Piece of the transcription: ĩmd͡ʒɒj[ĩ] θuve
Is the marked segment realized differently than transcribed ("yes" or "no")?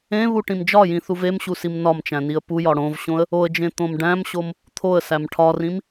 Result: no